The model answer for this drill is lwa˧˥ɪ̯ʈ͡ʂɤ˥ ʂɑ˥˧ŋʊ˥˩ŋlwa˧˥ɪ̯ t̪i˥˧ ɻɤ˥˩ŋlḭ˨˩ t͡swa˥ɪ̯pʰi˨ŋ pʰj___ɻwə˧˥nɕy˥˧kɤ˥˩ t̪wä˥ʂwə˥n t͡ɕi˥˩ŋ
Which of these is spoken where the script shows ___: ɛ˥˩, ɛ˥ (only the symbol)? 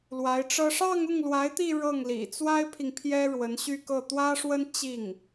ɛ˥